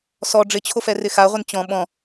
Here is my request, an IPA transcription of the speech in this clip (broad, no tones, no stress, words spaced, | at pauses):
sɔ ɖ͡ʐɪt͡ɕʰofɛrɪ xaʁʷɪn t͡ɕɔ̃ ɓɔ̃